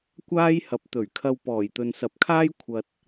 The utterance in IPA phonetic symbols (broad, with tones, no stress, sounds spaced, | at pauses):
kʷ aː˥ j h ɐ˨˥ p̚ t̪ ɵ˨˩ ɥ kʰ ɐ˧ w p ɔː˨˩ j t̪ ɵ˨ n s ɐ˨ p̚ kʰ aː˥ j kʷʰ ɐ˧ t̚